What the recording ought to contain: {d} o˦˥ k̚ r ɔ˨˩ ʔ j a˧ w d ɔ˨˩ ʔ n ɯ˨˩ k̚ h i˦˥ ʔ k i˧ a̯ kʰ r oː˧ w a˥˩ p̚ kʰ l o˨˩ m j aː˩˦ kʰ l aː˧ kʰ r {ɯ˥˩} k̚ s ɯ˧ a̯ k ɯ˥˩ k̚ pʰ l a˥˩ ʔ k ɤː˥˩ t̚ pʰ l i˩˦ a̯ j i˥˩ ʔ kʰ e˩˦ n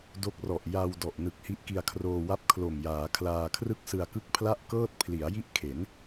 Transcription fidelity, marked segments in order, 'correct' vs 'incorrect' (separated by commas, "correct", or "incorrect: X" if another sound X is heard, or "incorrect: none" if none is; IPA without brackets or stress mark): correct, correct